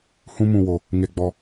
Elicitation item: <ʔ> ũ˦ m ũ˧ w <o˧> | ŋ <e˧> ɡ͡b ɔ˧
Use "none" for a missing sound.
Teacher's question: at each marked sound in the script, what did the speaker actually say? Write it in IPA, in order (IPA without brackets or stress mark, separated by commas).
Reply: h, o˧, e˧